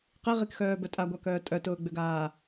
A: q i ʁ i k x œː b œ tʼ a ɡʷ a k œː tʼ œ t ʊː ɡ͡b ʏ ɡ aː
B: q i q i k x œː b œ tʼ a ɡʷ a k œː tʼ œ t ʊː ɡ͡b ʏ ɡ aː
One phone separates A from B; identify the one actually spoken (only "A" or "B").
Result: A